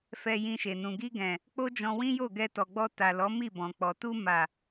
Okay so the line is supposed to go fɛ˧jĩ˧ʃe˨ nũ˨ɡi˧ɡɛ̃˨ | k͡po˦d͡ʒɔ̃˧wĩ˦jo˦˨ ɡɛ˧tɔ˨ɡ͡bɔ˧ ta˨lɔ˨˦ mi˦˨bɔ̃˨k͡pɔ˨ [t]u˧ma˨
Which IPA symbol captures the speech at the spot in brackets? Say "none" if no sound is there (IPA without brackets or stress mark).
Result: t